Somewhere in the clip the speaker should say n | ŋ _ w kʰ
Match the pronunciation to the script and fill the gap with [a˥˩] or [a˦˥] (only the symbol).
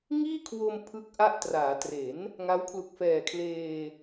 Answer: a˦˥